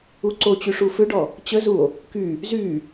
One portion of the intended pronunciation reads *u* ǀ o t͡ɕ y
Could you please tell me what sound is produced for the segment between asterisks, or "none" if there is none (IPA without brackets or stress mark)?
u